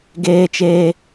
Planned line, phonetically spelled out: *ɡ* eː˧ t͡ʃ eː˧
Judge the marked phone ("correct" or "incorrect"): correct